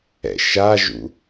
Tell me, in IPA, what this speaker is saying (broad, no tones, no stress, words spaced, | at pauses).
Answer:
ɛ̰ʃaʒṵ